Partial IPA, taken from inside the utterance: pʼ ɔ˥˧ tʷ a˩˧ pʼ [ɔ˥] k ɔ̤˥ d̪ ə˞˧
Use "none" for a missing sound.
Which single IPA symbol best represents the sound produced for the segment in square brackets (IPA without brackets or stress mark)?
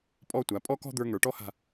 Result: ɔ˥